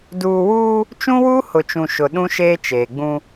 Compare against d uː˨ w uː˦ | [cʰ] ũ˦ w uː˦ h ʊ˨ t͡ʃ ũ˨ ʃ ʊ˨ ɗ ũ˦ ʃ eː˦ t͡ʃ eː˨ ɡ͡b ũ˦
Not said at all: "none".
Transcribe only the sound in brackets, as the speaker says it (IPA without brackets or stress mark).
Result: t͡ʃ